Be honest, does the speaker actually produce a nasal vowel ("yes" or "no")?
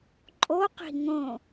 yes